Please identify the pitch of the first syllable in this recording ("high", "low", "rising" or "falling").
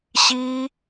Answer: high